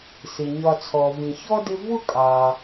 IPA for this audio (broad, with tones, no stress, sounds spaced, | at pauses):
s ɪ˩ ɲ ɒ˨ t͡sʰ ɔ˩ v ĩ˩ ç ɔ˥ d ɪ˦ v ʊ˥ kʼ ɑ˩